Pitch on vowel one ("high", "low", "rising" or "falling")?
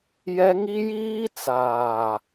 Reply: high